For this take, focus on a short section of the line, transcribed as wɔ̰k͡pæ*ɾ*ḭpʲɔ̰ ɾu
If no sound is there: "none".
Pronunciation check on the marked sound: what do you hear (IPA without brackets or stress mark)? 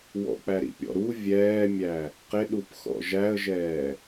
ɾ